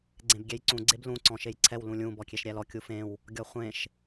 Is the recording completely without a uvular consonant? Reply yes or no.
no